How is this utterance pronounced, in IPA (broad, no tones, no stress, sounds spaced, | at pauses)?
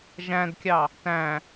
ʒ æ̃ d kʲ ɑ | t æ̃